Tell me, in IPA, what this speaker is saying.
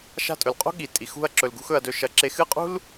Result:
ʃa̤˥˨tʼɵ˧˩˧lqʼo̤˥ ɠi˧˩˧ tʼi˧˩˧xṳ˥˨ɐ̯ ǁɵ˧lɡṳ˥x ɵ˧ɐ̯dɵ˧ ʃɐ˧ ǁe˧xɨ˥˨qʼṳ˥l

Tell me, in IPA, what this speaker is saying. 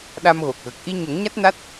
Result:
ɗa˧mɣo˨˩k̚ɣə˨˩k̚ ʔi˧ɲə˨˩˦ŋɲa˦˥t̚na˦˥t̚

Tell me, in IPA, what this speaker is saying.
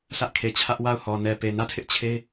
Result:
sʰä˦ʔkʰe˨t͡ɕʰä˦ʔ wa˦˨ʊ̯hɔ˨ nɛ˨pe˨ nä˦˨tʰɪ˦ʔt͡ɕʰe˦

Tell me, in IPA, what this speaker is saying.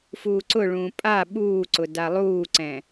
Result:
fuːǀʊɭũː pʼa ɓuːǀʊ dalˠuːǀɛ̃

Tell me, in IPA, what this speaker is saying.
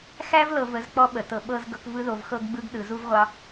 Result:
xæ˦vlɤ˨ və˨˦zk͡pɔ˦ɓə˨tɤ˨ ɓɤ˦z ɡɤ˦k vɯ˦ðo˨v xɤ˦ɡɡ͡bɯ˦ɡ ɗɯ˨zu˦vʁʷɑ˦

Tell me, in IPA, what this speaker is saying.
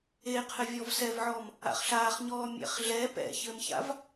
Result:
eqʰɘ vʲɔvsɛvʕɔːm | a̰χɬaːχɲɔː mʲɛ̰χɮɛ pɛ̰çɘmça̰v

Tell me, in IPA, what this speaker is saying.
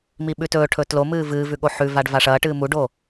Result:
miɓʉtɵːʈʰɵ tlomɨː vɨːvʉ ɠoħʉvaɖ vaʂɐːʈɨː muɖo

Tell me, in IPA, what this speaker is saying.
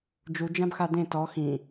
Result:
d͡ʒu d͡ʒãbxadẽ tɔ xĩ

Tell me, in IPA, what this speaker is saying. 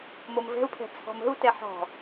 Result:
momvɛ̤u̯pʰɛ̤ t͡sʰɔ̤mə̤u̯tɛ ħɔ̤

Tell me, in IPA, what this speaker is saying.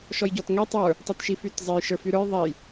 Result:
ʃɔjɟɔtŋɛ tˤə˞ | tˤytʃifytzˤej ʃə˞fyɾə˞j ðˤɛj

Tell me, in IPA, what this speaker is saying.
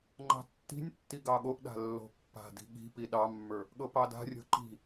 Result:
ŋ͡ǃɑ̤tːi̤nʲtːi ɡɑɠoʔɗa̤ lːo̤pːa̤di̤ ɠi̤ piɗɑmːə˞ | ɠɤpɑda̤rʲo̤ ǃi̤

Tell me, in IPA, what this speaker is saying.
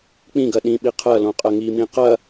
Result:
k͡pĩɡɐ ɗĩ ɓiqʰɐlõ qʼɐŋimĩ qɐ

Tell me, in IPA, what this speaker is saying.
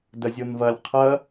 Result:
dɐzʲonvɐlʲ qʰɐ

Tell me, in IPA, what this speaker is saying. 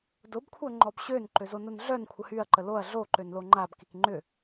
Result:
dʊbkʷʰœŋ͡ǃɔb ɕønǃøzonʊn ɮœnkʷʰə hyɐ̯ǃə loɐ̯ ɮoǃønlo ŋ͡ǃabkik ŋ͡ǃʏ

